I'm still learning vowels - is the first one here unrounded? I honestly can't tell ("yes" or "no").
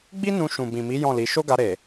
yes